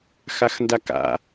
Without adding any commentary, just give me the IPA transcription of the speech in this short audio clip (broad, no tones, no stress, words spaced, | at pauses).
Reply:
xaxndaka̰